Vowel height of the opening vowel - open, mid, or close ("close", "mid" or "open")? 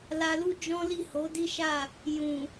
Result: open